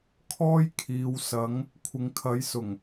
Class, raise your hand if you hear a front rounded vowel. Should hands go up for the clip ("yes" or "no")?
no